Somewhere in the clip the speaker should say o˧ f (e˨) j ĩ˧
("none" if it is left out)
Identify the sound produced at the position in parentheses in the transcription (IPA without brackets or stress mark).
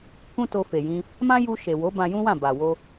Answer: e˨